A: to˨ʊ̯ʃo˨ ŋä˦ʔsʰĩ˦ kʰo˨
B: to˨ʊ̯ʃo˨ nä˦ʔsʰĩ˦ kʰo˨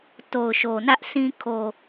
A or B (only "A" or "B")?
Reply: B